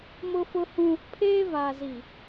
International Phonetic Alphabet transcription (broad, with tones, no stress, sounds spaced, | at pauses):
m ʊ˦ f ʊ˦ h ũ˦ | pʰ eː˦ v aː˨ z i˨